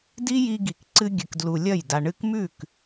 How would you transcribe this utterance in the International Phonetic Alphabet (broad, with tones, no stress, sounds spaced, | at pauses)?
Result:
d i˦ j i˧ ɡ i˨ k ǀ ɨ˧ ɡʲ ɨ˨ k d l u˨ lʲ ɐ˦˨ j d a˨ ɳ ɨ˧ k m ʉ˦˨ k